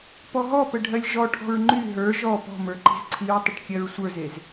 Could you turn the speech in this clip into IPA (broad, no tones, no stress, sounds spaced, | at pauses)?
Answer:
p ɔ ɦ ɔ p ə ɖʱ ɜ lʲ ʒ ɔ ʈʰ ɔ̤ ɹ ŋ͡ǃ y ɦ ə˞ ʒ ɔ p ɔ̤ m ə˞ ǃ i̤ z ǀʰ i ɹ tˤ ə ʈ kʲ ɜ ɹ sʷ ə˞ z e z